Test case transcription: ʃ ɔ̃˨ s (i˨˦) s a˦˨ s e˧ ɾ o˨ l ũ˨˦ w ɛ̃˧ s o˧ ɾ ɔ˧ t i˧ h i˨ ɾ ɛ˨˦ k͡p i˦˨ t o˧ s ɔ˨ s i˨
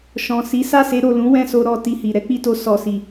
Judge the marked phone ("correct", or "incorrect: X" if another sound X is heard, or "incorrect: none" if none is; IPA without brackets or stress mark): correct